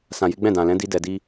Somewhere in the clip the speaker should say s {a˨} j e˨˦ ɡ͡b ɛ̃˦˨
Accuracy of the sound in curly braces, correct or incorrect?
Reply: incorrect: ã˨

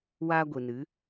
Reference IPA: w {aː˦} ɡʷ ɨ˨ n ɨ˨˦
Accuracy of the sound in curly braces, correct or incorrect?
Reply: correct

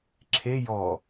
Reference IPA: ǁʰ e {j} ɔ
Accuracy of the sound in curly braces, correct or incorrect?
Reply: correct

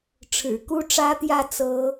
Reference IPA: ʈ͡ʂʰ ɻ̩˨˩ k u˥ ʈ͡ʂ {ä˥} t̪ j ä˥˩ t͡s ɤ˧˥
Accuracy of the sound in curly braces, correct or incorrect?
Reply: correct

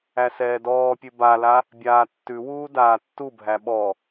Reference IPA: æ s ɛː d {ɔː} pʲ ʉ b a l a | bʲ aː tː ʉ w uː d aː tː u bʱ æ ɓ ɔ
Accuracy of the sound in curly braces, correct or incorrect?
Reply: correct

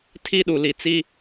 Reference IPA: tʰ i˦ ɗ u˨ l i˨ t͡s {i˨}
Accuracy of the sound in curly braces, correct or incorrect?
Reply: incorrect: i˦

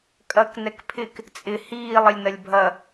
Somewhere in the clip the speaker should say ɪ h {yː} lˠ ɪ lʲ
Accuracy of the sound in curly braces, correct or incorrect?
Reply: incorrect: iː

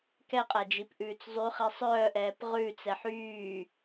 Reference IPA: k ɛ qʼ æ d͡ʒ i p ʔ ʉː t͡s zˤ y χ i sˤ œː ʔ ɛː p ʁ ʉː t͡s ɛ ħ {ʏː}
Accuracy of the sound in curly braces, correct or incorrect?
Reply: incorrect: yː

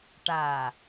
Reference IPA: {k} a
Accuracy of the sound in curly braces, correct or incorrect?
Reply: incorrect: ʈ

